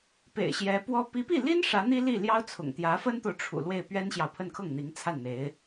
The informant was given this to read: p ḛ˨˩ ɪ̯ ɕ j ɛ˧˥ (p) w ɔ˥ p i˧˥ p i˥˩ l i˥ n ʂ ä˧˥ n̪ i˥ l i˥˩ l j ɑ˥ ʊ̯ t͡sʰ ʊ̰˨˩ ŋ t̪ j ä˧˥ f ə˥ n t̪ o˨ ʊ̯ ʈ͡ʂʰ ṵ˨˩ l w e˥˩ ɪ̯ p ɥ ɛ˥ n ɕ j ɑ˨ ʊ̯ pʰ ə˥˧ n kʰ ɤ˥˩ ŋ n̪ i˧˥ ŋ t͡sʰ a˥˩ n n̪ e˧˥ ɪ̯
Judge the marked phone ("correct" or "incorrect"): correct